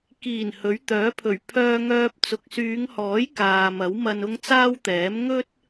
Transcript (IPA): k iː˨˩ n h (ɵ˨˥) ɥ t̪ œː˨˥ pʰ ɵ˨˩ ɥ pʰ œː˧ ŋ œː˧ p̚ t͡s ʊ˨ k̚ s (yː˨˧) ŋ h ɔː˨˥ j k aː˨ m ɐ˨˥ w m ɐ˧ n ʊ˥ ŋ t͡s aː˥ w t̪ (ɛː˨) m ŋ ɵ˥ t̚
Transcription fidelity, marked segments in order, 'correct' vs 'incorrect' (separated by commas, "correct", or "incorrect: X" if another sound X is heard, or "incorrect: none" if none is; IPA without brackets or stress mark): correct, correct, incorrect: ɛː˨˥